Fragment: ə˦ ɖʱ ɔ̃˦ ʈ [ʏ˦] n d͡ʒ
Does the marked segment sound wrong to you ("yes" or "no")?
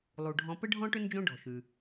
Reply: no